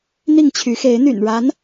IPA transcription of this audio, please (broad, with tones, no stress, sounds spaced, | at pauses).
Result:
n̪ i˥˨ ŋ t͡ɕʰ y˨˦ x e˨˦ ɪ̯ n̪ y̰˨˩ n ɻ a˨˦ n